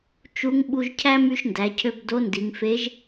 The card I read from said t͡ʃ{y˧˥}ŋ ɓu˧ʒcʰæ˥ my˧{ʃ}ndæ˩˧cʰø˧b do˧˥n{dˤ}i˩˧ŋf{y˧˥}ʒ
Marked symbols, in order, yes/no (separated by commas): no, yes, no, no